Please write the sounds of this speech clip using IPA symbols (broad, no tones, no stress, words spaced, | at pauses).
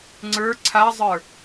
ŋ͡ǀə˞ ǀʰazˤə˞